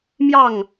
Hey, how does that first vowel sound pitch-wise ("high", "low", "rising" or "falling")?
falling